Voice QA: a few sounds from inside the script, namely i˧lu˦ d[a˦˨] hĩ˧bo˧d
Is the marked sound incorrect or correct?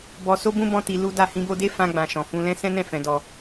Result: correct